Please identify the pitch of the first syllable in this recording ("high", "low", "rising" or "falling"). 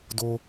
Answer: low